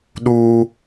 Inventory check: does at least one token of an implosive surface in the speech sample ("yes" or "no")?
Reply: yes